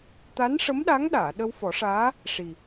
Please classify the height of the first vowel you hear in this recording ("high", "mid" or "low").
low